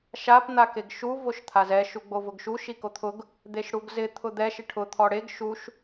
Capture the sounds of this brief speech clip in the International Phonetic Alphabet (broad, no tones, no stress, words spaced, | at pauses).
ʃap n̪akeɡʃu voʃt̪ʰazɛ ʃuɡ͡bovʊɡʃu ʃikot̪ʰʊɡ | d̪eʃɽuɡzɪ t̪ʰʊd̪ɛ ʃɪʈʰʊ t̪ʰɔɽeɡ ʃuʃ